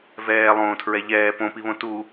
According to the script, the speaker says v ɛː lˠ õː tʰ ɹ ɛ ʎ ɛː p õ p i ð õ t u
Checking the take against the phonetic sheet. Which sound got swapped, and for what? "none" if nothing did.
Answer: ð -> β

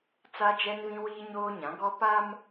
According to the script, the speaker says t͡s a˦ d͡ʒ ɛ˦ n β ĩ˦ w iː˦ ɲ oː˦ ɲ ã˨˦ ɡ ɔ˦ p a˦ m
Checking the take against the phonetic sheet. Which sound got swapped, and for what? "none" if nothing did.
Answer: none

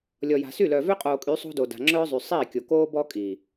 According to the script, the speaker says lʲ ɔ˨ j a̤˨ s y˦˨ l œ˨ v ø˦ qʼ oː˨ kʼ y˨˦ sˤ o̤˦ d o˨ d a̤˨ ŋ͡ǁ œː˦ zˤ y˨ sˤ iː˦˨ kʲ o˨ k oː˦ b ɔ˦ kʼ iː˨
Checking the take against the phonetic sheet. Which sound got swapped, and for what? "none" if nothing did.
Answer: none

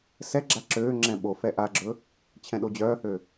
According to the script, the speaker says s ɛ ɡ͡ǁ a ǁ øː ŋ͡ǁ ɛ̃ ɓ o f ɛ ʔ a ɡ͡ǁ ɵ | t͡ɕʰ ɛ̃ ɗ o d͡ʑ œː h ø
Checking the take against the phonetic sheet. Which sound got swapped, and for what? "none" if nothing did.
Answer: none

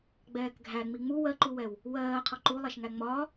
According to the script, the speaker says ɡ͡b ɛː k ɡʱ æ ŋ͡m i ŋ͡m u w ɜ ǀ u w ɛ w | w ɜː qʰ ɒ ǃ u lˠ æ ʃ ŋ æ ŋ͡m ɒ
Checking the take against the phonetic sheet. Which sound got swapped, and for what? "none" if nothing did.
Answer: ǀ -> ǃ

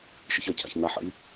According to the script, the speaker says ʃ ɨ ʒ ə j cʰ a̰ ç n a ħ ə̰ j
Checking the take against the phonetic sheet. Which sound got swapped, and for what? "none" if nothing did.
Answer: ʒ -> ç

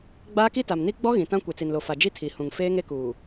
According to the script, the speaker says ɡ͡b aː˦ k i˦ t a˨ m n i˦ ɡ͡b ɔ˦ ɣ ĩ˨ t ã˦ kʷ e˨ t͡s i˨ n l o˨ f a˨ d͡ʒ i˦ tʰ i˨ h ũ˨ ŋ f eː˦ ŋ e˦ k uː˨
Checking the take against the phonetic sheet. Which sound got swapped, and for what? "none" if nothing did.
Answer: none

